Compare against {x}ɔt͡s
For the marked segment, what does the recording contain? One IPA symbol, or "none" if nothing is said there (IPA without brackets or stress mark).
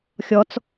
xʲ